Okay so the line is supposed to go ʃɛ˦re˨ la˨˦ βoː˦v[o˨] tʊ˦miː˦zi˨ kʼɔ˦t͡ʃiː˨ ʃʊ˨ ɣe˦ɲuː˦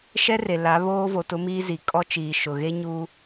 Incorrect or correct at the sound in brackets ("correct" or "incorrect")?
correct